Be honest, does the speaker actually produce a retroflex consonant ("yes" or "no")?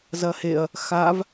no